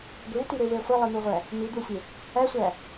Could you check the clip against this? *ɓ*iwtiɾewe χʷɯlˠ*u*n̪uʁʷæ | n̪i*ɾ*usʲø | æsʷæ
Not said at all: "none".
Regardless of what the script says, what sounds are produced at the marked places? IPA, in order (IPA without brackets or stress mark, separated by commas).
ɡʷ, ɯ, d̪